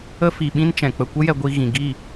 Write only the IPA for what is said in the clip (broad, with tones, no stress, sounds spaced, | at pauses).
ə˦ f i˨ ɓ ĩ˦ n t͡ʃ ɛ̃˨ k͡p ə˧ kʷ ə˦ j ɛ˧ ɡʷ i˧ ɣ ĩ˨ ɡ i˦˨